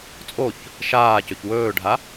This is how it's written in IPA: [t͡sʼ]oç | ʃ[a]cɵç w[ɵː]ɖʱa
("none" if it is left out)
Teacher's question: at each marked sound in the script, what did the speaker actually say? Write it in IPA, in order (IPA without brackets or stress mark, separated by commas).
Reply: t͡sʼ, aː, ɵː